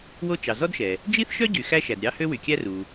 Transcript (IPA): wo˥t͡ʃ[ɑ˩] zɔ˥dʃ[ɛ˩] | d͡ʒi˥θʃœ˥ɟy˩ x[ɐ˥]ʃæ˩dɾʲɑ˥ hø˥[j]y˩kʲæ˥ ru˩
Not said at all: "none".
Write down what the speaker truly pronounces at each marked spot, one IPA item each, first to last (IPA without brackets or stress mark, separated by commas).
ɑ˩, ɛ˩, æ˥, w